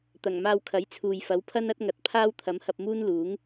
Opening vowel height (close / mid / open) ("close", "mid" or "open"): open